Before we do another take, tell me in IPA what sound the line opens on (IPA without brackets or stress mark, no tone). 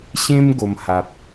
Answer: ɕ